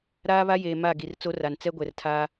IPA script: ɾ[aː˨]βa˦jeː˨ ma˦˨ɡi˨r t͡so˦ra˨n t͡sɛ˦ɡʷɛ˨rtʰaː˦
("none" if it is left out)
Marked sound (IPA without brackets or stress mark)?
aː˦